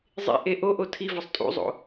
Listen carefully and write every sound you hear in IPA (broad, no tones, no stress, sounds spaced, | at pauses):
zˤ ḛ ʔ e ʔ o ʔ o tʰ i v ɒ sˤ tʼ ṵ zˤ o̰